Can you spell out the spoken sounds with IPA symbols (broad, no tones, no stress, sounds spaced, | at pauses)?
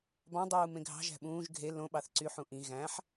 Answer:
b ɑ̃ dˤ uː m ẽ ɡʱ ɑ̤ ʒ æ̤ ɓ ũː ʒ ɡʱ e l õ ɓ ɑ θ ǀ y ħ ũ ʔ ĩ ɣ æ̃ ħ